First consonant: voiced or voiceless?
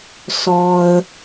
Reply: voiceless